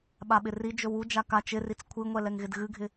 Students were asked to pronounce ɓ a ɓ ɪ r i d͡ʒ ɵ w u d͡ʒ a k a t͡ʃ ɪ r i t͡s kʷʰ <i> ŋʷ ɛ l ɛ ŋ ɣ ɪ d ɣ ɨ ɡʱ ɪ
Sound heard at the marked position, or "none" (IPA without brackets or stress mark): ɨ